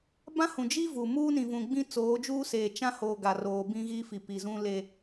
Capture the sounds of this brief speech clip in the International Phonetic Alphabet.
b ã˦ h ũ˨ d͡ʒ i˦ v uː˨ m uː˦ n ĩ˨ v ũ˨ ɡ͡b ĩ˦ t͡s oː˨˦ d͡ʒ uː˦ s eː˨ t͡ʃ ã˦ h oː˨ ɡ a˨ r oː˨ b ĩ˦ ɣ i˦ f i˨ p i˨ z ũ˦ l e˦

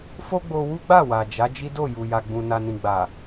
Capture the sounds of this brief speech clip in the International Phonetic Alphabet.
f o˦ ɡ͡b o˧ w u˦ ɡ͡b a˦˨ w a˨ d͡ʒ a˨˦ d͡ʒ i˦ d o˦˨ j u˨ j a˨ ɡ͡b ũ˨ n a˨ n ĩ˨ ɡ͡b a˨

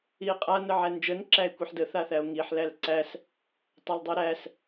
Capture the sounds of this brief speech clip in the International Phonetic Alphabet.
i e̯ qʼ a n ə ʕ æ n d͡ʒ ə n ǁ æ e̯ kʷ i ħ d ə θ a θ æ o̯ ŋ i ħ l æ l ǀ æ s | tˤ æ l dˤ i ɾ æ s

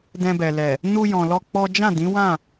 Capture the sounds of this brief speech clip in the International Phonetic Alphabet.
d ɛ̃˧ b ɛ˨ l ɛ˨ | n u˧ j ɔ̃˨ l ɔ˧ k͡p ɔ˦ d͡ʒ ã˦˨ d ĩ˨˦ w ã˦˨

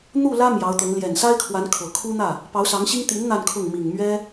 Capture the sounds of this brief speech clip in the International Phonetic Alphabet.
n̪ u˥˩ l ä˥ m j ɑ˧˥ ʊ̯ t̪ ɤ˧˥ ŋ l j ɛ˨˩ n s a˥ ɪ̯ kʰ w a˧˥ n kʰ ɤ˨˩ kʰ u˥ n̪ ä˥˩ | p ɑ˧˥ ʊ̯ s ɑ˧˥ ŋ ɕ i˥ ŋ t̪ i˧˥ n n̪ a˥˧ n kʰ ʊ˥˩ ŋ m i˨˩ ŋ m ɥ ɛ˥

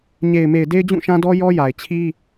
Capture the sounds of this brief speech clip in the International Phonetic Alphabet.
ɲ e˨ ɪ̯ m e˨ ɪ̯ d e˦ ɪ̯ d͡ʑ ũ˦˨ ʃ ã˦ d ɔ˦ j ɔ˦ j a˨ ɪ̯ t͡ɕʰ i˦

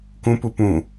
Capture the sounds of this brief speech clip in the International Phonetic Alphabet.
k ũ p u p ũ

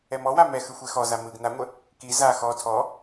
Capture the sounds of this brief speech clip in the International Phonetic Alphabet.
ɛ m ɔ w a m ɛ x ɯ xʷ ɛ x ɔ z a m ɯ ɡ n a ŋʷ ə | k i z a x ɔ tʰ ɔ

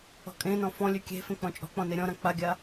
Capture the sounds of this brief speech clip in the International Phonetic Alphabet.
ɔ̤ kʼ ẽ n ɔ̃ f ɔ̃ lʲ ʉ kʲ e̤ f ẽ k͡p ɔ̃ t͡ʃʼ ɔ̤ k͡p ɔ̃ n e ɾʲ ɔ̃ ɾ ã k͡p a ɡʲ a

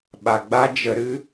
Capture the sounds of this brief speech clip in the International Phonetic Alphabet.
ɓ a˨ ɡ͡b a˦ d͡ʒ ə˧ ɾ ɨ˦

